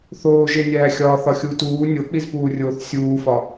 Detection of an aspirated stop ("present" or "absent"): absent